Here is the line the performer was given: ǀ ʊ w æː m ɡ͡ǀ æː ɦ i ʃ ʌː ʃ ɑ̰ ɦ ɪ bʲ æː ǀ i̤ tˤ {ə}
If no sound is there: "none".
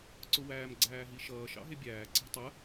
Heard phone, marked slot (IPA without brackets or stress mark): ə